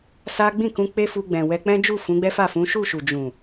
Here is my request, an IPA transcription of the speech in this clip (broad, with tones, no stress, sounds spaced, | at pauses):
s a˦ ɡ͡b ĩ˦˨ k ũ˧ k͡p e˦ f u˧ ɡ͡b ɛ̃˨ w ɛ˧ k͡p ɛ̃˦ d͡ʒ u˦˨ f ũ˨˦ ɡ͡b ɛ˦ f a˦˨ f ũ˨˦ ʃ u˦˨ ʃ u˨ d͡ʒ ũ˨